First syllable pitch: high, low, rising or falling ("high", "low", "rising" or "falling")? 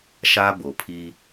high